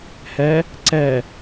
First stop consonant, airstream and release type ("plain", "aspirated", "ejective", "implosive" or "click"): click